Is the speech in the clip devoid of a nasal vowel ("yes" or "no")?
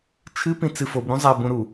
no